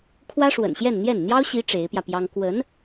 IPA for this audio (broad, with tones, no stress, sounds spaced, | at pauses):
kʰ w ä˥ ʂ w ə̰˨˩ n ɕ j ɛ˥˧ n n̪ j ɛ˥˩ n n̪ j ɑ˥ ʊ̯ ɕ i˧˥ ʈ͡ʂ e˧˥ ɪ̯ p j ä˧ p j ɑ˥ ŋ k w ə˧˥ n